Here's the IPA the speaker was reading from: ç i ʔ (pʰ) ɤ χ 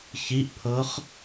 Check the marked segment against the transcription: correct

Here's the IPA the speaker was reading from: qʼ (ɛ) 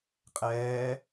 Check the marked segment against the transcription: incorrect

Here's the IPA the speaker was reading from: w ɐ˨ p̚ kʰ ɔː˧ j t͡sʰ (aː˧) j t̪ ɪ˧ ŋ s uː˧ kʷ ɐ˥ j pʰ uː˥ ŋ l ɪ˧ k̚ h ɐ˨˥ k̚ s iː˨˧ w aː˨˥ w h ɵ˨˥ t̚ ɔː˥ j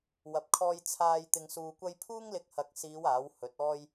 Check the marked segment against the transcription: correct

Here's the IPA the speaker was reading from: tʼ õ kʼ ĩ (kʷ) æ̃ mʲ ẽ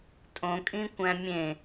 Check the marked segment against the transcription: correct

